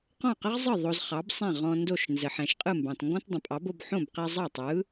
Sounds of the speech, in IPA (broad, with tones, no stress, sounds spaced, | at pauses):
q ɔ̃˥˩ q ə˥ ʁ zˤ ɯ˥˩ ðˤ o˧ z χ ɑ˩˥ b sˤ ɛ̃˥˩ ʁ ɔ̃˧ n d o˥˩ ʃ n z ə˩ ħ ɛ̃˩ ʃ qʼ ɯ˥˩ m b ɑ̃˩ t ŋ ɡ ɔ̃˥ t dˤ ə̃˩ pʼ ɑ˩˥ b o˧ b ħ õ˥˩ b q ɛ˧ zˤ ɑ˥˩ tˤ ɯ˩˥